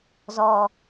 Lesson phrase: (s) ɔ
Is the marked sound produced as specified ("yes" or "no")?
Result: no